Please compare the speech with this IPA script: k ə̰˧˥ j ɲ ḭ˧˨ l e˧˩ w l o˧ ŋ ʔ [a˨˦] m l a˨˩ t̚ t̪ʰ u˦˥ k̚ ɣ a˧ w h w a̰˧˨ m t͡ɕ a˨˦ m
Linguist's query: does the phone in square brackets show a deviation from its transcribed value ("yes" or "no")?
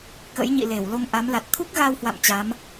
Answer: no